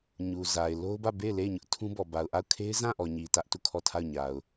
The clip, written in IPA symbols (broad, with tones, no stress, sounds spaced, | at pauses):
ɲ u˨ z a˨ ɪ̯ l o˦ ʊ̯ b ä˦˨ b e˦˨ ɪ̯ l e˦˨ ɪ̯ ɲ ʊ˦ ʔ tʰ ũ˦ b ɔ˨ b a˨ ʊ̯ ʔ a˦˨ ʊ̯ kʰ e˦ ɪ̯ z ã˦˨ ʔ ɔ˨ ɲ i˨ t ä˦ ʔ t u˦˨ kʰ ɔ˦˨ tʰ a˦˨ ʊ̯ ɲ a˨ ʊ̯